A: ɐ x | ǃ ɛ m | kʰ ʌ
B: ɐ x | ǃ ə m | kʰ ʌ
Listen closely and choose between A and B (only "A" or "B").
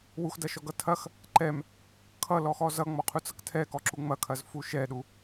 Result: A